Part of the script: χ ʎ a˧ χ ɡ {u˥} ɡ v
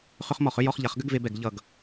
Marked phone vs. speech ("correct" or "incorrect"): incorrect